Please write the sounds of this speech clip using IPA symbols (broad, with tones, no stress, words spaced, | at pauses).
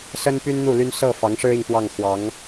sə˥npy˥nn̪u˥˩ ly˥n sɤ˥˩ fɑ˧˥ŋʂɻ̩˥i˨ŋpwɑ˥˩ŋ xwɑ˧˥ŋ